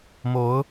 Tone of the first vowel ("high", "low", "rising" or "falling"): rising